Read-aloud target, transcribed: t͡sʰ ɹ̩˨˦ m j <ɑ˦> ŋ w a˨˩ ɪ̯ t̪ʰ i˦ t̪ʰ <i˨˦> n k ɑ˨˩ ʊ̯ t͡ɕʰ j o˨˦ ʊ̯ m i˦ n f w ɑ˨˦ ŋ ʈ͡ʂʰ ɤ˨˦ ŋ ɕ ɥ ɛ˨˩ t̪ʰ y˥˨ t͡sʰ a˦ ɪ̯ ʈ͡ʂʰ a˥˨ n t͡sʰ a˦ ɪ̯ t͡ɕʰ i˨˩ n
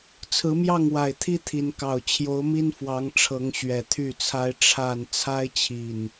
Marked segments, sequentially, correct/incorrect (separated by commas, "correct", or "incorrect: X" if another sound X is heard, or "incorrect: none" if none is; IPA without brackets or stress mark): incorrect: ɑ˥˨, correct